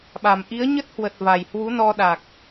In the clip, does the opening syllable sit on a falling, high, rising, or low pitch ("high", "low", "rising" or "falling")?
low